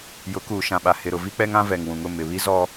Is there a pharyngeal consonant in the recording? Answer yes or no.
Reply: no